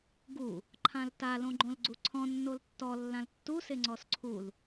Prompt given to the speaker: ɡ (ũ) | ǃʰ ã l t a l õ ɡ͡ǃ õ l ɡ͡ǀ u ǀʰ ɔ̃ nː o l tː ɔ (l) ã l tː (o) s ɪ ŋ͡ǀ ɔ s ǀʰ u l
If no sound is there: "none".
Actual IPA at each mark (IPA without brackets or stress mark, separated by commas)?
u, lː, u